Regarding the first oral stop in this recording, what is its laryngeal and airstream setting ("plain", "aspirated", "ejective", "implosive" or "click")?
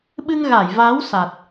implosive